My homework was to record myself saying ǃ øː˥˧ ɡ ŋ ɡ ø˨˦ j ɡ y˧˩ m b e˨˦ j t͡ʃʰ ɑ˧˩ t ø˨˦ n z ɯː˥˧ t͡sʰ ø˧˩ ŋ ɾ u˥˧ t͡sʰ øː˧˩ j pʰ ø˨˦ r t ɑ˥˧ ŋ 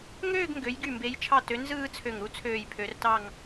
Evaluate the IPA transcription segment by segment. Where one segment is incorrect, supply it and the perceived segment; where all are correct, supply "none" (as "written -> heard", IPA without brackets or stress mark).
ǃ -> ŋ